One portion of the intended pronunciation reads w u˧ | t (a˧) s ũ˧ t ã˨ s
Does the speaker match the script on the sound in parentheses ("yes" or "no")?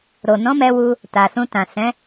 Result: no